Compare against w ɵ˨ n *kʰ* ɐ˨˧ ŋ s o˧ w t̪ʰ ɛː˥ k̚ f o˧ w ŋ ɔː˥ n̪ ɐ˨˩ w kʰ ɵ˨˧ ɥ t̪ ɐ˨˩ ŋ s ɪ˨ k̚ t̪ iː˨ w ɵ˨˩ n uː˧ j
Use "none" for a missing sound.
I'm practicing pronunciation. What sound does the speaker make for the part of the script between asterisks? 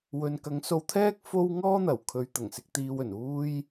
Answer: k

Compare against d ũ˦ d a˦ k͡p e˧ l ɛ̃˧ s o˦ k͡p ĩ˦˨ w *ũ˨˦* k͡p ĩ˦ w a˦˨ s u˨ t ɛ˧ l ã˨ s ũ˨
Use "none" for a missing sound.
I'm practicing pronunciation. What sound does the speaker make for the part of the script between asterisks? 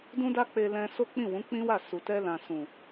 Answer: ũ˨˦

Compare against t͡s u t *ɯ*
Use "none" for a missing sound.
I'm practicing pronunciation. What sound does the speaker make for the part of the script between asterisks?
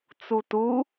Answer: u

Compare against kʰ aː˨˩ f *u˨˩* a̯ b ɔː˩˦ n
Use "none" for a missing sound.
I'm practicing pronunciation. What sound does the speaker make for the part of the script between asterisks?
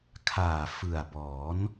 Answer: ɯ˨˩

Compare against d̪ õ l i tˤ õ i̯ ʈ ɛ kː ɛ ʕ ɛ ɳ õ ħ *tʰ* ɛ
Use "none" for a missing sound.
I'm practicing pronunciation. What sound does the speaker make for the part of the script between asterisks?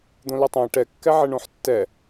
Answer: tː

